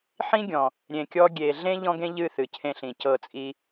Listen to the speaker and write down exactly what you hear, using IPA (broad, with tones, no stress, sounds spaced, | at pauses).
ħ ĩ˦ ɡʲ ɔ̃˨ | ɾʲ ẽ˨ kʲ ɔ˧ ɡʲ e˨ ɮ ẽ˦ ʎ ɔ̃˦ ɡ ẽ˦ ʎ ɨ˦˨ θ ɨ˨ cʰ ẽ˧ ɬ ĩ˨ c ɤ˦˨ t͡sʼ i˦